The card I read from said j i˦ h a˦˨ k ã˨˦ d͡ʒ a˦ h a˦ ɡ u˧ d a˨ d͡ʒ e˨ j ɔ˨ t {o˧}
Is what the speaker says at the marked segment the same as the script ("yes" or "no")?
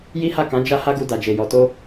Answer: yes